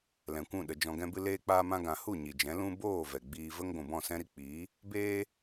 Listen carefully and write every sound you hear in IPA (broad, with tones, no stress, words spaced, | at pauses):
lɛ̃˨kʷũ˦˨ ɗə˨ d͡ʒɔ̃˨ɡɛ̃˧bɨ˧ leː˧k͡paː˧mã˧ ɡã˨hu˦˨ ɲi˨d͡ʒɛ̃˨˦ lũ˦ boː˦˨ vɛ˨ɡ͡biː˧və˦ŋ ɡʷũ˨bɔ̃˦˨sɛ̃˦ ɾi˧ k͡piː˨˦ | beː˧